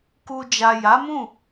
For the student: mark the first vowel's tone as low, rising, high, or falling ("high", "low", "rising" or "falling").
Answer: low